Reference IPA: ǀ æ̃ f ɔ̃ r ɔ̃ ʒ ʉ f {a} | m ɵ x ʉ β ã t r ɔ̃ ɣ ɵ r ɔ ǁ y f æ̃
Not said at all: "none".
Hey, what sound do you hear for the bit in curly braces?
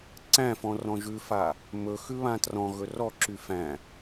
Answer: a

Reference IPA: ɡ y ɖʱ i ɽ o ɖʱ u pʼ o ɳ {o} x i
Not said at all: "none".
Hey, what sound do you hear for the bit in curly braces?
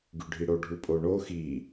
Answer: o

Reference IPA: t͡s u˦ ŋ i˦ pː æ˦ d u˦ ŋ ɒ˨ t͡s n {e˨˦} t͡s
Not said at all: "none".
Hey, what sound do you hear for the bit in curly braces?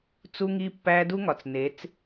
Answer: e˨˦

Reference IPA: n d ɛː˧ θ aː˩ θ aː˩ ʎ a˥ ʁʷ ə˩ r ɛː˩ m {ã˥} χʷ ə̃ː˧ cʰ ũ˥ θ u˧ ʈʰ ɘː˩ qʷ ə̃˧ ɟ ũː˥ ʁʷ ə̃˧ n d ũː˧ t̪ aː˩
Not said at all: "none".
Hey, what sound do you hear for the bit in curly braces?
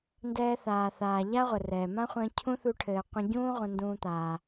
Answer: ã˥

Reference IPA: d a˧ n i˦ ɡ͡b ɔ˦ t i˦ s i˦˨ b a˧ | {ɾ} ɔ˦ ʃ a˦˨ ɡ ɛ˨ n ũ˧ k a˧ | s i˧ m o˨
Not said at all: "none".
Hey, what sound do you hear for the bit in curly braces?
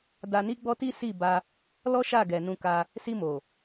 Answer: l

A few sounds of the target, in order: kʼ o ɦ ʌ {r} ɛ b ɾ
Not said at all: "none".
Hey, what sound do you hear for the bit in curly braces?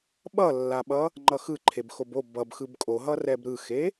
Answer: r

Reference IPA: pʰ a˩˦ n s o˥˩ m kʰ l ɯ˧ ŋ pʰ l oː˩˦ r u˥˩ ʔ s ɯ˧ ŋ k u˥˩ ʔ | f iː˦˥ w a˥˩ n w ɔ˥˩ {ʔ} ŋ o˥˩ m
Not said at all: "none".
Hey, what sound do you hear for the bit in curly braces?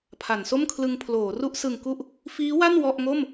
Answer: ʔ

